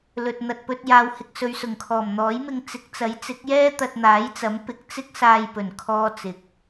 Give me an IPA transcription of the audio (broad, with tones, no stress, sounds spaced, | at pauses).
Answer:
l ɵ˨ t̚ n̪ ɐ˨ t̚ p ɵ˧ t̚ j aː˨ w h ɪ˨ k̚ s ɵ˨ ɥ s ʊ˨˩ ŋ kʰ ɔː˨˩ m n̪ ɔː˨˥ j m ɪ˧ ŋ t͡s ɪ˨˥ k̚ t͡s ɐ˨˥ j t͡s ɪ˨˥ k̚ j ɛː˥ t̪ ɐ˧ t̚ n̪ aː˨˥ j t͡s ɐ˨˥ m p ɪ˨˥ k̚ t͡s ɪ˥ k̚ s aː˧ j p ɵ˨˩ n kʰ ɔː˧ t͡s ɪ˨ k̚